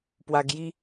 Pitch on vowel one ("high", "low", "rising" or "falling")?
low